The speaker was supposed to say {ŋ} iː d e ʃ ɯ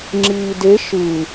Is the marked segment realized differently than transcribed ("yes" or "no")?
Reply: yes